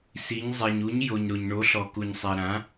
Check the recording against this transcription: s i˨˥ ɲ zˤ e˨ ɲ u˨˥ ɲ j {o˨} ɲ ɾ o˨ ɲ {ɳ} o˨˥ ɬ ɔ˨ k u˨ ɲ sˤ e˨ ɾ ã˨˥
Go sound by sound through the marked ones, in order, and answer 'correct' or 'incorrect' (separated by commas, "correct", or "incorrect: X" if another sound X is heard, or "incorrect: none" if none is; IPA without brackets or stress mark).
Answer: correct, correct